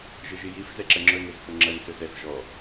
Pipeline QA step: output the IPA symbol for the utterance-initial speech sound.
ʒ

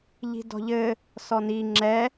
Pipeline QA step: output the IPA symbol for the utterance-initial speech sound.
ʎ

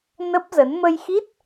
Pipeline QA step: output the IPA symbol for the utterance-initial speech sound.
n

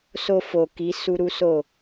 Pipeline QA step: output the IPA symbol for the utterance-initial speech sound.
s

